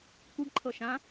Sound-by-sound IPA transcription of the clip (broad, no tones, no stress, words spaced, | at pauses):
kʷiɡǃʰɤ ʃã